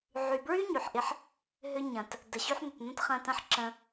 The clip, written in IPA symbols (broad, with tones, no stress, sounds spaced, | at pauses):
ʕ y˨ b ɹ y˦ ɲ y˨ ħ ʔ ɪ˦ ħ | ɦ ʏ˦ ɲ ɐ̃˨ t | d ə˨ ɕ y˦ ħ n̪ ʏ˨ t n̪ ə̃˦ t χ ɐ̃˧ t ɐ̃˦ ħ ǁ ə̃˧